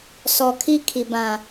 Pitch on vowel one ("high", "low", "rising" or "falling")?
low